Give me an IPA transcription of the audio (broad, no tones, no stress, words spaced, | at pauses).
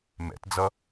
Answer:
mɛ̰td͡zʌ